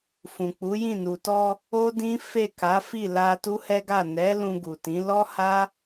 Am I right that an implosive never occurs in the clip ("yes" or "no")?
yes